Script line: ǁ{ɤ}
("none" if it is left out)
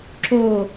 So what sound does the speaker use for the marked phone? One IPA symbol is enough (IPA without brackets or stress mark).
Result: o